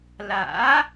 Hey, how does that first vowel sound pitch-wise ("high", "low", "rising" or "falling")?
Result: rising